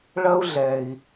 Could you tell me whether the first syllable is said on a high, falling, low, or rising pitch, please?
high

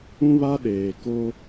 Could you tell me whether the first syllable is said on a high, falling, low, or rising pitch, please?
high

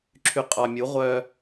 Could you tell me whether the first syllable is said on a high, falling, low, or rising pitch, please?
low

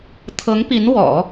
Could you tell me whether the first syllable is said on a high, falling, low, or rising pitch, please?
rising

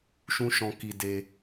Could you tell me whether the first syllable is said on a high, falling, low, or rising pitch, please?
high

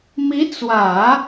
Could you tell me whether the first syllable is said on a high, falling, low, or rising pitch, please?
rising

